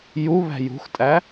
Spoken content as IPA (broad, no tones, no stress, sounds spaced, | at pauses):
j u β æ̤ j ṳ x tʼ æ